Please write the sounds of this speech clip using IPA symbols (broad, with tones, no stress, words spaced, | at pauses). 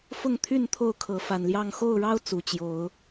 fʊ˥˨ŋt̪ʰy˥˨n t̪ʰo˥˨ʊ̯kʰɤ˨˦fa˨˩nljɑ˥˨ŋ xo˥˨ʊ̯ɻɑ˦ʊ̯ t͡su˨˩t͡ɕjo˨˦ʊ̯